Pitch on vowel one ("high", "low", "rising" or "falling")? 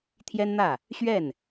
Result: high